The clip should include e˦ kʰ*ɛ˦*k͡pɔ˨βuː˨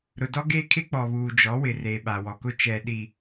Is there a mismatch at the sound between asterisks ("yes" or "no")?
yes